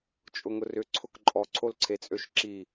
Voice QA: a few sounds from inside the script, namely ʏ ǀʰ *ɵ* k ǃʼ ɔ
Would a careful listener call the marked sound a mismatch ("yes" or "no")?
yes